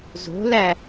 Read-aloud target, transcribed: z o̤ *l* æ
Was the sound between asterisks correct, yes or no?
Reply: yes